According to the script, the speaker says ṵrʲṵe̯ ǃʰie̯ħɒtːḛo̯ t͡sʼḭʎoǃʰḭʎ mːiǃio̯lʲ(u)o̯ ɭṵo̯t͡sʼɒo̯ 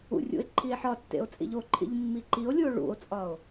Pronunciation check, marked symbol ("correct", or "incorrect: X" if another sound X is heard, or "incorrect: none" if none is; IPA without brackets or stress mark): correct